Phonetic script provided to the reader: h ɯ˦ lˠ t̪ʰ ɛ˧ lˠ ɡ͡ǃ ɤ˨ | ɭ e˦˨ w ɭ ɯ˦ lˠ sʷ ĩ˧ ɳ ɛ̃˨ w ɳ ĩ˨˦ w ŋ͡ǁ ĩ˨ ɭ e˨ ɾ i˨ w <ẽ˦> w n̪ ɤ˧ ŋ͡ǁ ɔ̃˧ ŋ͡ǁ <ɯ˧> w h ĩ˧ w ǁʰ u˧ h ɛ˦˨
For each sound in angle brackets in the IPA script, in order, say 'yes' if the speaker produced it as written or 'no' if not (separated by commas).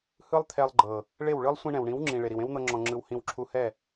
yes, yes